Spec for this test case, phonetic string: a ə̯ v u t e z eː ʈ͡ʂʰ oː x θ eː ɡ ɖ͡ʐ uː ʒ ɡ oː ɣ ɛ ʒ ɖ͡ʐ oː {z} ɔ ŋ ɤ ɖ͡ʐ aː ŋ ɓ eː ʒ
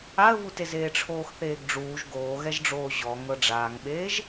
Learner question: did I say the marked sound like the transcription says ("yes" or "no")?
no